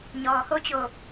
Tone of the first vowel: low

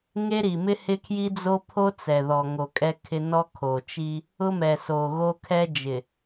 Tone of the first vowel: high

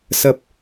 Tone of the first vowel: low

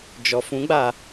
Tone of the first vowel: low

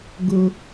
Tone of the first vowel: high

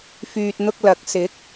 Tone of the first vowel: low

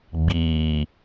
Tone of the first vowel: low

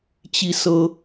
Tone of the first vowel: falling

